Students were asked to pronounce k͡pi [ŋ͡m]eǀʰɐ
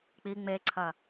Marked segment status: correct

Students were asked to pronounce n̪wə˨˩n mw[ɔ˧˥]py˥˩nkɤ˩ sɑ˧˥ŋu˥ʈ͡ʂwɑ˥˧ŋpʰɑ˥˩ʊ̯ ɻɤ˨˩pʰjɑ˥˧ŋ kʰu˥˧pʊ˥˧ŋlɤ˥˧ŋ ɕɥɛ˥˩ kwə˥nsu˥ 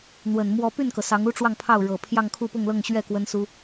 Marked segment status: correct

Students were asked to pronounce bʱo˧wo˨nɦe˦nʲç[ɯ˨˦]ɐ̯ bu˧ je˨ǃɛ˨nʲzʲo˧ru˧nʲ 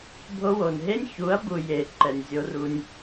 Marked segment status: incorrect: u˨˦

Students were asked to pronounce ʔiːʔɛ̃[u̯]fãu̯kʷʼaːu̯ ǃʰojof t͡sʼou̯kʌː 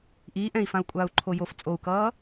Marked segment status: incorrect: i̯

